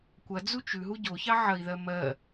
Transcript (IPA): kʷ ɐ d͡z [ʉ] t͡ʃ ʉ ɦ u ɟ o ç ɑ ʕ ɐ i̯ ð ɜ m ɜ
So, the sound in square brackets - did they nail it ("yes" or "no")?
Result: no